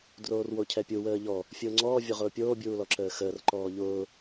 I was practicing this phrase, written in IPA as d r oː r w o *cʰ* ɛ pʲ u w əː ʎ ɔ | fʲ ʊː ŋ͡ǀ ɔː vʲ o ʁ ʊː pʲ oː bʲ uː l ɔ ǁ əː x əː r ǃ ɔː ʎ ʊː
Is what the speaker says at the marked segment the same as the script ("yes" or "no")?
yes